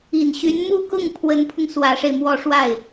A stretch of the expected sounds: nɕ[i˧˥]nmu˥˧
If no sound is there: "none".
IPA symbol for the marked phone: y˧˥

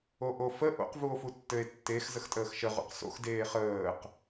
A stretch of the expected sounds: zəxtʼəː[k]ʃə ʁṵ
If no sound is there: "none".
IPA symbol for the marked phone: x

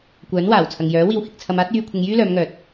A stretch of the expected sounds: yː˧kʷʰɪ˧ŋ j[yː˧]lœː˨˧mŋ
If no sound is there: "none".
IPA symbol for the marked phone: yː˥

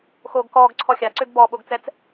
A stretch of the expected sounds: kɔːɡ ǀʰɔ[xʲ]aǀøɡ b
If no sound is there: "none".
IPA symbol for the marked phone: xʲ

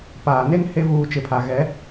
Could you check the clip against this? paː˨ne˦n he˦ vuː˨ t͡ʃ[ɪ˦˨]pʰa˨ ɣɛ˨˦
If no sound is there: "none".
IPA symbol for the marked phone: ɪ˨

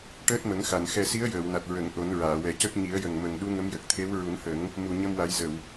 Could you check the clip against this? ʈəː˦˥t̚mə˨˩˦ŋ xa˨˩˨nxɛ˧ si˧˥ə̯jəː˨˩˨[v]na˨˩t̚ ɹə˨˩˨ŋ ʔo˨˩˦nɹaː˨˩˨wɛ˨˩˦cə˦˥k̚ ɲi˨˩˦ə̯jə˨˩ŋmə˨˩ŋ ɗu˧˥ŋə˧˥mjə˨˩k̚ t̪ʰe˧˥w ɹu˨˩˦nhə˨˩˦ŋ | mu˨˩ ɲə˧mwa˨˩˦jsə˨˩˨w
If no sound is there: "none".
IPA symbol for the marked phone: w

